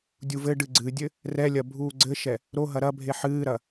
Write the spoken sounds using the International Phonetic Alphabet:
dʲuvɘɖɨ ɡ͡ǀɨdʲɘ | rɛlʲɐ bʱuːɡ͡ǀɘʃɛ | ɾoɦɐ ɾɐbʱe ħɨːɾɐ

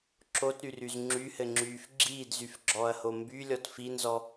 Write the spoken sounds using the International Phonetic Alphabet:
ǁotɾyryz ŋ͡ǁyhɘŋ͡ǁyːf ɡ͡ǁiːdzyfɡ͡ǁɔːɐ̯ho mbylʲɔt finzɔ

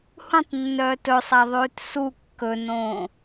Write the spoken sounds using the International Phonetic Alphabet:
hũtˤnːœːt ɵsˤæðˤʉːt su kːɵnõː

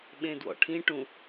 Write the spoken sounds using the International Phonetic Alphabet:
ɓẽdwɔ̰ʈʰĩ ʈũ

